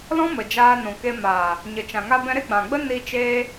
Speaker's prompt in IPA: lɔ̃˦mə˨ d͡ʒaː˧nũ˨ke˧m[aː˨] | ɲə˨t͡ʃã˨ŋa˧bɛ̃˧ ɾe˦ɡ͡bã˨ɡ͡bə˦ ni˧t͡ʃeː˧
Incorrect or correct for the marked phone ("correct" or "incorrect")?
correct